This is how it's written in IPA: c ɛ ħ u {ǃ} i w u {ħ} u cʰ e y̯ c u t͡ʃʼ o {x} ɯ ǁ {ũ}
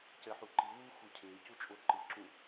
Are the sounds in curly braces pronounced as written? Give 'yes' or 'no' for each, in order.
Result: yes, no, no, yes

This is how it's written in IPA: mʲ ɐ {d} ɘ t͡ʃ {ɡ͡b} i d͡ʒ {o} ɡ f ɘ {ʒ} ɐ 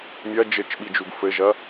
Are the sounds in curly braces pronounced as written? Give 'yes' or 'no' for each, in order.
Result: no, no, no, yes

